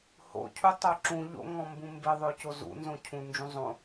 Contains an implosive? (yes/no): no